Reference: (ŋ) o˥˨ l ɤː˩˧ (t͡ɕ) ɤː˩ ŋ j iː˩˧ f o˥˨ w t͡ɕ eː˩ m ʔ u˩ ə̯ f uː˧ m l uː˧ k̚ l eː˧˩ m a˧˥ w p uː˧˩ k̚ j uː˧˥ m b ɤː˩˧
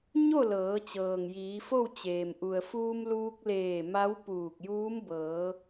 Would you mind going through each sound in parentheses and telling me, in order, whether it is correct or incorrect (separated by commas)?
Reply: incorrect, correct